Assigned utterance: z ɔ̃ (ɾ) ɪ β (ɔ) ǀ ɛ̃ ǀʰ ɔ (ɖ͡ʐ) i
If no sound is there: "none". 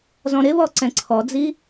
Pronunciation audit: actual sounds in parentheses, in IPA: ɾ, ɔ, d͡z

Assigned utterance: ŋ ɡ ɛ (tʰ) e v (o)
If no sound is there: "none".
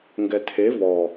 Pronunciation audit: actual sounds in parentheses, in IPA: tʰ, ɔ

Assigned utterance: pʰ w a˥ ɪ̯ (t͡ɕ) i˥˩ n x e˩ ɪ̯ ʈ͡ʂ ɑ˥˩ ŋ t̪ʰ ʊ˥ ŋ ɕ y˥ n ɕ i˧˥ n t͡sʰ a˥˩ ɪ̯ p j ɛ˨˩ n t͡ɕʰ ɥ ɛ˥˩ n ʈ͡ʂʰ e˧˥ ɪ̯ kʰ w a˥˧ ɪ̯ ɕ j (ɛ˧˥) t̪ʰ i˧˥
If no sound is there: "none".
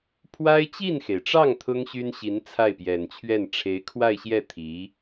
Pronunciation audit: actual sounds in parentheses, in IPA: t͡ɕ, ɛ˥˩

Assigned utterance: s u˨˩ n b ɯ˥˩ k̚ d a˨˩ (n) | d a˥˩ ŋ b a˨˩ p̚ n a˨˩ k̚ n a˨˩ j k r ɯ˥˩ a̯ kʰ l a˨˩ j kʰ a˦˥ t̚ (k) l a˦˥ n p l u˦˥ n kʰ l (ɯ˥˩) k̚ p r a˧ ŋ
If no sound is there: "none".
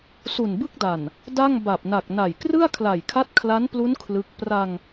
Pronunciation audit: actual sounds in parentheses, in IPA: n, kʰ, ɯ˦˥

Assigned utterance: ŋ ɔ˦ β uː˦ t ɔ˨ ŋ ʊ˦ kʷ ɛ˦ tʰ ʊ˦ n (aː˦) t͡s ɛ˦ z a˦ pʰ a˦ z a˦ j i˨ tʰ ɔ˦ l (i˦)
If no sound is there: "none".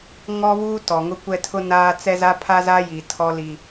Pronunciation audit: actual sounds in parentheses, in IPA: aː˦, i˦

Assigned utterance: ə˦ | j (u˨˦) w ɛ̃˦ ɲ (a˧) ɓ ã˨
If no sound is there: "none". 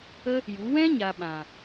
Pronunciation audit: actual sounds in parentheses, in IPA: u˨˦, a˨

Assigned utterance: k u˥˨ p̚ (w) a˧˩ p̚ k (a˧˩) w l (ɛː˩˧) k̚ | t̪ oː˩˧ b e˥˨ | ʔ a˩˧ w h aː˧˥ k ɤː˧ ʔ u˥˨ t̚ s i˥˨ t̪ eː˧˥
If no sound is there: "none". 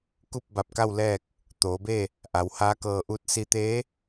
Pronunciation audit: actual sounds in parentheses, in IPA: b, a˥˨, ɛː˥˨

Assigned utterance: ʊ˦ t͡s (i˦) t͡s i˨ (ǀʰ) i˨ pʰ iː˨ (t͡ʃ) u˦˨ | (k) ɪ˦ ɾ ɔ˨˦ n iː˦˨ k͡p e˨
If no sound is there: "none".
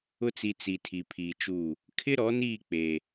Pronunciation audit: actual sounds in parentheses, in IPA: i˨, tʰ, t͡ʃ, kʰ

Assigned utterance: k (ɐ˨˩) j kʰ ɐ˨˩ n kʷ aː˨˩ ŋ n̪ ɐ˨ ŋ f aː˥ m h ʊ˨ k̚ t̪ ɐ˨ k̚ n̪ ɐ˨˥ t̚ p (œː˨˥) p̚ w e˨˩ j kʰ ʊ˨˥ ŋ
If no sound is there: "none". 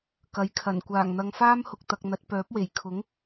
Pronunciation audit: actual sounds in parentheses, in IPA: ɐ˨˥, œː˨˥

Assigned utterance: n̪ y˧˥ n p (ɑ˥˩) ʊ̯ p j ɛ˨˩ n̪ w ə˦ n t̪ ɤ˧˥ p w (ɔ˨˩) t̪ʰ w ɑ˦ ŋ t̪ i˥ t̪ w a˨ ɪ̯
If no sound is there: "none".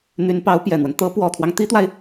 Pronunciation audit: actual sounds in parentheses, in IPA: ɑ˧˥, ɔ˨˩

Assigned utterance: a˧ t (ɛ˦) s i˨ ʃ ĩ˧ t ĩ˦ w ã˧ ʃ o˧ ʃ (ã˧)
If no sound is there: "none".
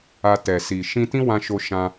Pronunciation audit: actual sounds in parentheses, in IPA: ɛ˨, ã˧

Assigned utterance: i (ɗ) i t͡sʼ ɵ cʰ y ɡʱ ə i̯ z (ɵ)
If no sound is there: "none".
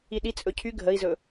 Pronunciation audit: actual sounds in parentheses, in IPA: ɗ, ɵ

